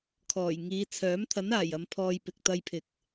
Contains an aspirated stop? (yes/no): yes